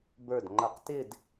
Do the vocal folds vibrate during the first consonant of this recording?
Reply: yes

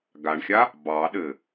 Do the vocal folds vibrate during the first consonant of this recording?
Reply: yes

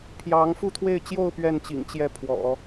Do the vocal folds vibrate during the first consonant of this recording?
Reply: no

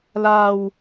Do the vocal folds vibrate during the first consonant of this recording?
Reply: yes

